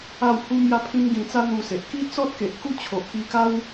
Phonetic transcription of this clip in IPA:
a˥˧ w h u˦ m j a˦ pʰ ĩ˦ m ɡ ĩ˧ t͡s a˦ n̪ u˧ s e˨ ʔ k i˦ t͡s ɔ˦ t̚ k e˨ ʔ k u˦ t͡ɕʰ o˨ ʔ k i˧ k a˦ w

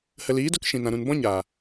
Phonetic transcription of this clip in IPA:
h ə˨ l iː˨˦ d o˧ k ʃ ĩ˨ n ã˨ ɾ ũ˨ n b ɔ̃˦ ɲ aː˨

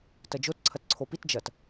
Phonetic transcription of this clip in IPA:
t ɐ d͡ʒ o t ǀʰ ɐ t ǀʰ o p i t d͡ʒ ɐ t

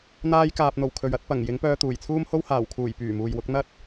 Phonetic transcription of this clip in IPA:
n̪ aː˧ j k aː˨ p̚ n̪ o˨˩ w kʰ ɵ˨ ɥ ɐ˨˥ t̚ p ɐ˨˩ ŋ j ɪ˨˥ ŋ p œː˧ t̪ uː˨˩ j t͡sʰ uː˥ m h o˥ w h aː˨˩ w kʰ uː˨˩ j p yː˨˩ m uː˨ j w ʊ˨˥ k̚ n̪ ɐ˥ t̚

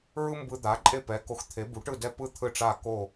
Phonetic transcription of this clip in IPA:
ɹ ɯ˥ m b ɯ˧ d̪ a˩˥ ǃʼ e˥˩ p ɛ˩˥ k o˧ x t̪ʰ e˩˥ b u˩˥ ʈ ɯ˥˩ d ɛ˥˩ p ɯ˥ t̪ʰ ɯ˥˩ ʈ͡ʂ a˥˩ k o˥˩

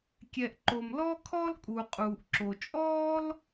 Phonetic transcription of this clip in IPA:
kʲ ɛ˩ ʔ ǃ o˩ m l ɔː˥ kʰ ɔː˥ l kʼ uː˩ qʼ uː˩ ʔ ǁ o˩ t͡ʃʼ ɔː˥ l

